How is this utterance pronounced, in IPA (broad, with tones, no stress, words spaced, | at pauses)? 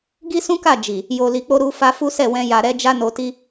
ɡi˦sũ˦ka˦˨ d͡ʒi˨ | jo˨li˨k͡po˧ ɾu˧fa˧ fu˦sɛ˦˨wɛ̃˧ ja˨ɾɛ˧ d͡ʒa˦no˧ti˦